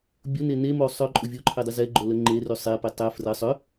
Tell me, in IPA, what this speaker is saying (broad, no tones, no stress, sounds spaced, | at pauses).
bʲ ʊ n e n e m o sˤ œ ǃʼ ʊ vʲ o ǃʰ e dˤ ɪ z ɛ ɡ͡ǃ o l ə ŋ͡ǃ e r y sˤ e p ɪ tˤ ɛ f r ə sˤ ʏ